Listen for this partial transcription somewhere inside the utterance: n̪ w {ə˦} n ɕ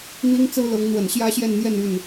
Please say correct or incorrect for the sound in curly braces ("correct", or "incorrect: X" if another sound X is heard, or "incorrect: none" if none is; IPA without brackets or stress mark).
incorrect: ə˨˩